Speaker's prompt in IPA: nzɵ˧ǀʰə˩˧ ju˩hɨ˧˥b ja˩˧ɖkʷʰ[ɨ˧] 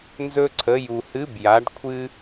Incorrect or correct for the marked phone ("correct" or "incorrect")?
correct